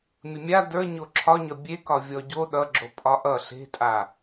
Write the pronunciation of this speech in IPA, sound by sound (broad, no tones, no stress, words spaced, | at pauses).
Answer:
mʲəmʲa də˞ ɲoǁʰɒɲʌ bʲekɒ vʲɔɟo ɗʌɡ͡ǁo pʼɒʔʌ ɬe̤tʼa